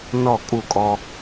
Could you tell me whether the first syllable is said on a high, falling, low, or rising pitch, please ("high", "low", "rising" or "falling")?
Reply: falling